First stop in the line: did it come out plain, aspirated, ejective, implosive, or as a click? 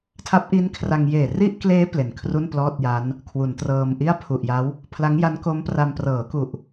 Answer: aspirated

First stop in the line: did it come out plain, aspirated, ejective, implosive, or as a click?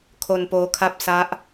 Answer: aspirated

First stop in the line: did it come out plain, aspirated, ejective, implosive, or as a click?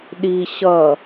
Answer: implosive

